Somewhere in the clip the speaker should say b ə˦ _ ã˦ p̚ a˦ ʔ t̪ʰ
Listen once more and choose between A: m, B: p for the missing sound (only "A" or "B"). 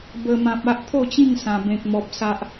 A